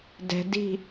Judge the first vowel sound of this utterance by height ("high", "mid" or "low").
mid